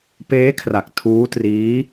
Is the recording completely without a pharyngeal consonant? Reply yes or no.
yes